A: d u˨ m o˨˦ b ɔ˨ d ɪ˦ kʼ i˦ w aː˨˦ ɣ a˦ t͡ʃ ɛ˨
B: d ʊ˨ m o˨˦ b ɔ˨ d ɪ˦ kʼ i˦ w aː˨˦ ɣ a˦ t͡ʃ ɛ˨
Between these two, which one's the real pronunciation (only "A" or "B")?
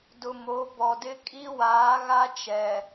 B